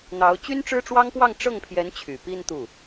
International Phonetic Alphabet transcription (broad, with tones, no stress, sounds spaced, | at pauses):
n̪ ɑ˧˥ ʊ̯ t͡ɕ y˥ n ʈ͡ʂ ɻ̩˥ ʈ͡ʂ w ɑ˥ ŋ p w ɑ˥˧ ŋ ʈ͡ʂ ɤ˥˩ ŋ pʰ j ɛ˧˥ n t͡ɕʰ y˨˩ p i˥˧ n t̪ u˥˩